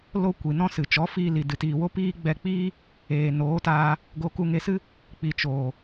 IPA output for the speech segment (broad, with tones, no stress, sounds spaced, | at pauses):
l o˦ kʷ i˨ n ɔ̃˦ s ɨ˨ t͡ʃ ɔ˨˦ f iː˧ l i˨ d ɨ˨ t iː˨ w o˦ p iː˦ ɡ͡b ɛ˧ k͡p iː˦ | eː˨ n oː˨˦ t aː˧ | ɡ o˧ k u˧ ŋ e˧ s ɨ˦ | k͡p i˨ t͡ʃ oː˨